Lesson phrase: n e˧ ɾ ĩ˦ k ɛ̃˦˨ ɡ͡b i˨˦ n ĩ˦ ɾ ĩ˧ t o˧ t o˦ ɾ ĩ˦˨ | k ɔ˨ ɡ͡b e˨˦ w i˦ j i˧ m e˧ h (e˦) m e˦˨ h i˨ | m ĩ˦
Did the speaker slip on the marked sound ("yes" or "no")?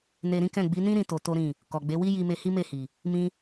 yes